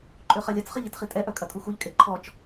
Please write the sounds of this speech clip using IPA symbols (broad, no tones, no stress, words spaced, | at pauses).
ǃʼøχɐlʲɐt͡s χəʎitχitʼɛ ʔœkʼɐtʼuxuʎ kʼeǃʰɔt͡ʃ